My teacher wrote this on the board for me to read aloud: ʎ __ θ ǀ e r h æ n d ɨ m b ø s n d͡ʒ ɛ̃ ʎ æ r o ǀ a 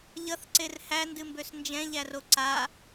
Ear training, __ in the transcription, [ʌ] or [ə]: ʌ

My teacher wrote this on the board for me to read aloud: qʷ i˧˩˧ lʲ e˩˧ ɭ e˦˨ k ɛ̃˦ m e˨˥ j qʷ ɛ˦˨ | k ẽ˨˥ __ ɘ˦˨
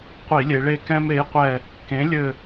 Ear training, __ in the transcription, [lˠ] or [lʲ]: lʲ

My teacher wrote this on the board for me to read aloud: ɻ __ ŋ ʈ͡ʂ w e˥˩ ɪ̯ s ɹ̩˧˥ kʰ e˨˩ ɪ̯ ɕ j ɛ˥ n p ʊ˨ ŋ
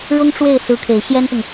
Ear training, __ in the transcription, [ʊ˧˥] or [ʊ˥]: ʊ˥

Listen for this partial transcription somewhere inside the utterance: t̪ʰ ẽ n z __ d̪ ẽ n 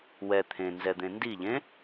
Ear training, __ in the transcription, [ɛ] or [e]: ɛ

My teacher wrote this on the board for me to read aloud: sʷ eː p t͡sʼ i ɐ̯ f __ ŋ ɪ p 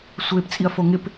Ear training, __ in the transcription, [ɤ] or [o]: o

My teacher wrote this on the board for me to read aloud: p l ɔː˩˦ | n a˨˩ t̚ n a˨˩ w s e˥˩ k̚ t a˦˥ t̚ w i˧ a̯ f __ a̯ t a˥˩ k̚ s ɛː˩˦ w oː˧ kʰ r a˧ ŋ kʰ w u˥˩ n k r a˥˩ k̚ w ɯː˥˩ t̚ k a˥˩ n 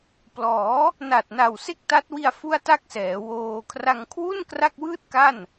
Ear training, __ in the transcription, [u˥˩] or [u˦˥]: u˥˩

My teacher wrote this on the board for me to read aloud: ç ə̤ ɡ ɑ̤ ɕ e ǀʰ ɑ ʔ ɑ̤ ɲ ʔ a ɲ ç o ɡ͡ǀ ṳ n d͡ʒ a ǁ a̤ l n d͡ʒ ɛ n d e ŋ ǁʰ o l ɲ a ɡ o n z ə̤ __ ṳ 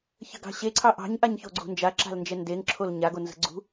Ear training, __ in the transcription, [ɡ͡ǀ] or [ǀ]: ɡ͡ǀ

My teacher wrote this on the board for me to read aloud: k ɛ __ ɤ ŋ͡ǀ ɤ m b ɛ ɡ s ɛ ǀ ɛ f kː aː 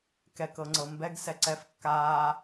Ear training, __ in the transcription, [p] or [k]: k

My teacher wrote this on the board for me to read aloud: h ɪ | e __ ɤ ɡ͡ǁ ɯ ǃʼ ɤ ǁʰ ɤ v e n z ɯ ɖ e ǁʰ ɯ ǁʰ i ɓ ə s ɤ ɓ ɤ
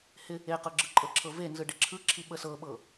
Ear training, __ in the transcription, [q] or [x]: q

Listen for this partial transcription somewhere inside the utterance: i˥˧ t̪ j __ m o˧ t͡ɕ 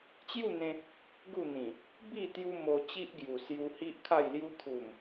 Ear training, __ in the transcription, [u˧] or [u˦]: u˦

